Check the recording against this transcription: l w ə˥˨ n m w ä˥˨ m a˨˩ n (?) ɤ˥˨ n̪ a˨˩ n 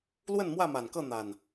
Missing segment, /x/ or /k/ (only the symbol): k